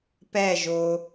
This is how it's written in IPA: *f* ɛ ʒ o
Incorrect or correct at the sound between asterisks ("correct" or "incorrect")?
incorrect